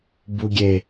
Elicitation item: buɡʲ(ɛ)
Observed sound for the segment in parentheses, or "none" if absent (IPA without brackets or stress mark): e